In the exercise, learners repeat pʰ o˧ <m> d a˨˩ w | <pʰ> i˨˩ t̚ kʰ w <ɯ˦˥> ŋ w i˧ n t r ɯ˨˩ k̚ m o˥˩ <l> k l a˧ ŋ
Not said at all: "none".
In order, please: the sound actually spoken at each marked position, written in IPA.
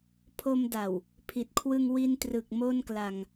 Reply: m, pʰ, ɯ˧, n

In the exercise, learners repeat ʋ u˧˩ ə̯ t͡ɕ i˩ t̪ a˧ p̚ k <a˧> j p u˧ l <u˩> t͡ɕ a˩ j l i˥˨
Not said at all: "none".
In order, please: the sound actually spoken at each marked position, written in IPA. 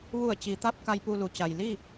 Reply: a˧, u˩˧

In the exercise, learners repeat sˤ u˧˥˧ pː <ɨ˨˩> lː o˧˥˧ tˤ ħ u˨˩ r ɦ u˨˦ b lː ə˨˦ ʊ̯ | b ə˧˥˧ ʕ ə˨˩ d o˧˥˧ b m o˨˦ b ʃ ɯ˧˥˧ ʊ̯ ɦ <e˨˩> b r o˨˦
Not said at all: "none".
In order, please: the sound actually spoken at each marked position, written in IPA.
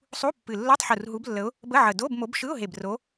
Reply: ɨ˨˩, e˨˩

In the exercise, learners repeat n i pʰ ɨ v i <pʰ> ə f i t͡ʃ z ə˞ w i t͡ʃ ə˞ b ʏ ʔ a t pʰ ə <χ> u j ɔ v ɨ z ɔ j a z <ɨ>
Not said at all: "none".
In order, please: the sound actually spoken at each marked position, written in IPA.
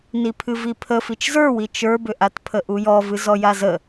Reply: pʰ, ʔ, ə

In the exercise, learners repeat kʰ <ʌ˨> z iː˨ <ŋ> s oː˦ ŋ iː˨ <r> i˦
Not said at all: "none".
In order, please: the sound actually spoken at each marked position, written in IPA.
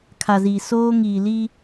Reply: a˨, none, l

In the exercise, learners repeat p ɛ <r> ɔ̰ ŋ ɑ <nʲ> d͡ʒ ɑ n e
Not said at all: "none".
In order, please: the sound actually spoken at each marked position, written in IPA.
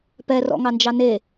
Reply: r, n

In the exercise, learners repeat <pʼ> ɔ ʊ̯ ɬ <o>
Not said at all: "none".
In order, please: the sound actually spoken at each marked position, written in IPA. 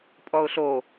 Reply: pʼ, o

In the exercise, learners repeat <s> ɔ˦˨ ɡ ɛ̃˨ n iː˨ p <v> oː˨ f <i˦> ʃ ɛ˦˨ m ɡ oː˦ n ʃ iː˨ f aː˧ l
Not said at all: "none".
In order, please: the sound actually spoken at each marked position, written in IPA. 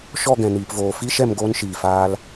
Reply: ʃ, v, i˦

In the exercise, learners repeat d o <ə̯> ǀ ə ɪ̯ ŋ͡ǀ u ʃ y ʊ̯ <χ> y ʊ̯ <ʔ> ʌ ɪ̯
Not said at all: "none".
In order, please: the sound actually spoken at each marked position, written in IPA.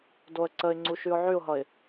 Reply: ə̯, ʕ, ɦ

